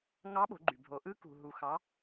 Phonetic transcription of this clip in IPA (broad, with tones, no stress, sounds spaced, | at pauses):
ŋ ɑ˧˥ ɓ o̤˩˧ ɡ͡ǃ y˩ bʱ o˩˧ ʔ ɯ˧˥ k ṳ˩ ɦ u˩ x ɑ˩˧